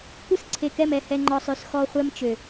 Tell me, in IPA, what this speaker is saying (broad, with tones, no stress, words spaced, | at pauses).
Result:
kʷɨ˦˨sǀʰe˨kɛ˦˨mɛ˨ hɛ˨ŋ͡ǃɔ˨sˤø˨s xɔ˦ χʷɛ˦mt͡ʃø˨